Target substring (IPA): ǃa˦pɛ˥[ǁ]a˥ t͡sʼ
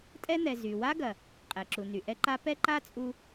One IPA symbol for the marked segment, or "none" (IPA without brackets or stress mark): ǃ